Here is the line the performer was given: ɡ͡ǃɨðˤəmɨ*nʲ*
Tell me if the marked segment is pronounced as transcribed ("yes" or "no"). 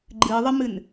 no